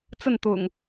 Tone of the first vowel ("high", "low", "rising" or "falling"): falling